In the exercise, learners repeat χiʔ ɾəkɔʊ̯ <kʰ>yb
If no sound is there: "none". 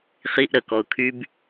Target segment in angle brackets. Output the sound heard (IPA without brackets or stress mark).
kʰ